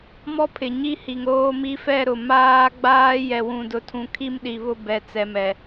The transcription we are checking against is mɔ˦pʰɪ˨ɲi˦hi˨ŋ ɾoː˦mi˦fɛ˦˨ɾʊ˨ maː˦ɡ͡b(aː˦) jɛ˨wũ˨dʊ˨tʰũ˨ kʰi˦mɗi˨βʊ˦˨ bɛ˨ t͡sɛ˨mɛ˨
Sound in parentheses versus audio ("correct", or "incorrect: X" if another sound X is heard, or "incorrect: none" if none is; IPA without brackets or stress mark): correct